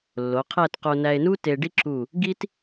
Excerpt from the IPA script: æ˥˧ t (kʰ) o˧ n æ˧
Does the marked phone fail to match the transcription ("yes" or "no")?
yes